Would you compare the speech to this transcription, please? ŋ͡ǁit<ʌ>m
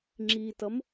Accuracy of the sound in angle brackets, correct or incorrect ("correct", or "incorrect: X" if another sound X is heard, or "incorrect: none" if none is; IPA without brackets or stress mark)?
correct